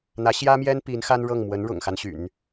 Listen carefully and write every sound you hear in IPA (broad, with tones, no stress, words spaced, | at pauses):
n̪ä˧˥ɕjä˥mjɛ˥n pi˧˥nxa˥nɻɤ˥˩ŋ mwə˧˥nɻʊ̰˨˩ŋxa˦n ɕy̰˨˩˦n